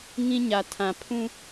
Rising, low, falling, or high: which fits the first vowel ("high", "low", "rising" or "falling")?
high